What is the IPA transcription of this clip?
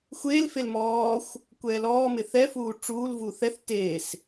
xʷeːlfel mɔːxʷ | kʷɛːlɔːmɪ θɛfuː ʈ͡ʂuːlvu θɛθ teːs

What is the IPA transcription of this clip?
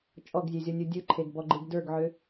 t͡ʃʼɔɡzʲøzʲɔnʲu dʲɯǃʰeɡbɔɡ͡ǃɯɡ də˞ɡʕø

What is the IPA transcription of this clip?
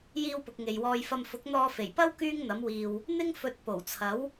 jiː˧wpʊ˨k̚ ŋe˨jwɔː˧jfɐ˧m fʊ˨˥k̚n̪ɔː˧fe˨˩j pɐ˥w kyː˥ŋn̪ɐ˨˥m wiː˨w | n̪ɪ˥ŋ fɵ˨˥t̚ po˨˩wt͡sʰɐ˨˥w

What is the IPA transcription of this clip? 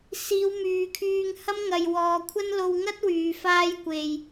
siː˨˧wmyː˨kʰyː˧ŋhɐ˥m ŋɐ˨jwɔː˨kʷʰɐ˥n lo˧wŋɐ˥t̚ wyː˨˧faː˥jkʷe˧j

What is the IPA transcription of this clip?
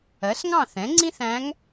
ɜ˩˥sŋɑ̃˥˨θɛ̃˩˥ ŋ͡ǀĩ˥θæ̃˧˥ŋ

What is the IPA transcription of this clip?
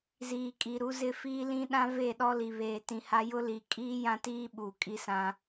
ziː˨kʼi˨ɾu˦zɪ˦ fiː˦lĩ˦ ɗã˦ve˦˨ɗɔ˦ li˨βeː˨tĩ˨ha˦ jʊ˦li˨ kʼiː˦jã˦tiː˦ ɓuː˨kʼi˦sã˦

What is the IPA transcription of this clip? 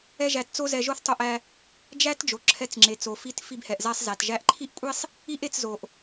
ɛ˥ʒæ˧tt͡so˥ zɛ˧ ʒo˥θtˤo˧ʔæ˧ | d͡ʒæ˥t d͡ʒo˩ ǁʰɛ˧t͡sŋ͡ǁe˩t͡so˩fi˧t fi˧bhɛ˩ʔzæ˧sˤ zæ˩tʒæ˧ʔ ǃʰi˥ʔkʷʼi˥sˤ | i˥ʔe˧t͡szo˩ʔ

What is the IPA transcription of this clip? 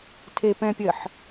tʰe pɛ̃pʲɜħ

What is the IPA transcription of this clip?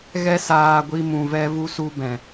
ɣɛ˦saː˧ɡʷi˧ mũ˨vɛ˧ vu˧su˧ bɛ̃˨

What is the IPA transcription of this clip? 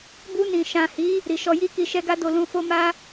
bu˧nĩ˨ ʃã˨hi˨˦ | ɾi˨ʃɔ˧ji˦ki˧ ʃɛ˦ɡa˦ do˧lũ˧fo˦ ma˦

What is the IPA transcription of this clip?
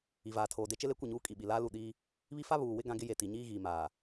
i˨vaː˨tʰoː˨de˦ t͡ʃɪ˦le˦kʷɪ˦˨ɲuː˦ kʼi˨ɓi˨laː˦lu˦˨ ɗiː˦ | βi˦fa˦ βuː˨wɪ˦ ɡã˦ɡɪ˦ je˨ ti˨ɲiː˦ɣiː˨maː˨

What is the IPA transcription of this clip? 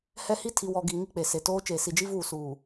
hɛ˦hi˦ tʰi˨wɔ˨ɡi˨ ŋi˦k͡pe˨ se˨toː˦ t͡ʃeː˨si˨d͡ʒi˦vuː˦˨ suː˨

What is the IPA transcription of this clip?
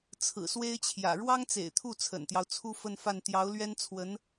t͡sʰɹ̩˨˩swe˥ɪ̯t͡ɕʰjä̰˨˩ ɻwɑ˥ŋt͡sḛ˨˩ɪ̯t̪ʰu˥˩ t͡sʰə̰˨˩nt̪jɑ˦ʊ̯ t͡sʰu˥fə˥˧nfa˥˩n t̪jɑ˧˥ʊ̯lɥɛ˥nt͡sʰwə˧˥n

